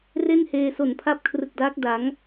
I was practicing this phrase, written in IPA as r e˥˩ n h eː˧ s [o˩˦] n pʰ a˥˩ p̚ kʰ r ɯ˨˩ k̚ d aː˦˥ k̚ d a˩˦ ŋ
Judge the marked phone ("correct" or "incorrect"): incorrect